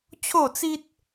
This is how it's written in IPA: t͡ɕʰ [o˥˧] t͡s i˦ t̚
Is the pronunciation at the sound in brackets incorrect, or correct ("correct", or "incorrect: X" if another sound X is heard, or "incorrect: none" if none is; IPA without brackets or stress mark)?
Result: correct